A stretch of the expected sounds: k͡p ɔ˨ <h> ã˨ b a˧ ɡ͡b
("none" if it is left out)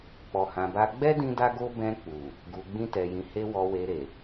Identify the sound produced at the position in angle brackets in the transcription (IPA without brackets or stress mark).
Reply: h